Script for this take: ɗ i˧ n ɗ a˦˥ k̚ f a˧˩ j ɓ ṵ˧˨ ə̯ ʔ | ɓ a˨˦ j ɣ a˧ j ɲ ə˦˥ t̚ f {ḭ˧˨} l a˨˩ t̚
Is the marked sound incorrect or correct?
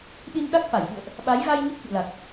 correct